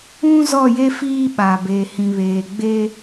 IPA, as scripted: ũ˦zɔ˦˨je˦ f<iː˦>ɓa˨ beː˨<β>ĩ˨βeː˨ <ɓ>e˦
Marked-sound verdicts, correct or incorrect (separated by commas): correct, incorrect, incorrect